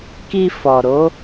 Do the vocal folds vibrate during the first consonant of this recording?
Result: no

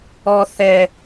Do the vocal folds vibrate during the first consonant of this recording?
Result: no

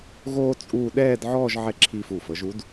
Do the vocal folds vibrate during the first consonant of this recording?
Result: yes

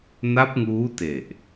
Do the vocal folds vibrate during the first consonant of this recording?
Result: yes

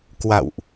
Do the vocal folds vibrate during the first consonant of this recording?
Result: no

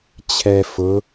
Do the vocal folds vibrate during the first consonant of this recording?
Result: no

